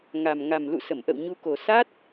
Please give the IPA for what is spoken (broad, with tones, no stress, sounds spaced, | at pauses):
ŋ a˨˩ m ŋ a˨˩ m l ṵ˧˨ s ə˧˩ m ʔ ə̰˧˨ w ɲ u˨˦ k o˨˩ s a˦˥ t̚